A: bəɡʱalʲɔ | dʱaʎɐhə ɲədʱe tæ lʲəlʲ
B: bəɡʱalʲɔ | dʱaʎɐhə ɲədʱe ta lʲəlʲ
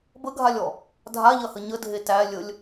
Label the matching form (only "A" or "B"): A